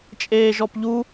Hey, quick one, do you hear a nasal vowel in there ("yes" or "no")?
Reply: no